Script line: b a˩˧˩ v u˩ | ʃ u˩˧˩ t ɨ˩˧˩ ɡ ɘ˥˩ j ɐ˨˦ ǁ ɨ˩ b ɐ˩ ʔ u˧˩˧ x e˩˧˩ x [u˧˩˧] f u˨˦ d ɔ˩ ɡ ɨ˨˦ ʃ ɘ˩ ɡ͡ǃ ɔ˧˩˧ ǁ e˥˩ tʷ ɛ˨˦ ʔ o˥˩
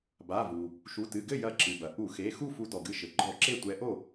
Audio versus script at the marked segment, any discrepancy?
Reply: yes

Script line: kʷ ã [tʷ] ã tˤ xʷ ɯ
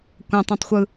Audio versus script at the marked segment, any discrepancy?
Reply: yes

